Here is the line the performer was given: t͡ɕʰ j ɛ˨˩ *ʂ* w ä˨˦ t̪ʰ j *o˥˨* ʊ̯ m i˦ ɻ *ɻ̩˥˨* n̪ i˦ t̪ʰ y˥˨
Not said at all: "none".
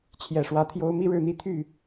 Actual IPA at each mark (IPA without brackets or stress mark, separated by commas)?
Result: ʂ, o˦, ɻ̩˥˨